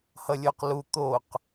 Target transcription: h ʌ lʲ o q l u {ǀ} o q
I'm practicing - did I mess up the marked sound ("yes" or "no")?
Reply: yes